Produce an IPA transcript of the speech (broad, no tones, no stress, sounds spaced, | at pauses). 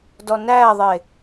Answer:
d ɔ n æ ðˤ e